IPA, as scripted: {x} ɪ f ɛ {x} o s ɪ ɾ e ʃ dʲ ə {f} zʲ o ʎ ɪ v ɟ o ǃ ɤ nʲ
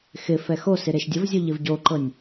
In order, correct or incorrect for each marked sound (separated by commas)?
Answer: correct, correct, incorrect